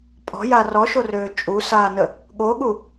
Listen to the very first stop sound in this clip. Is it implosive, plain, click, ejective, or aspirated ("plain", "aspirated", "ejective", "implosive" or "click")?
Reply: ejective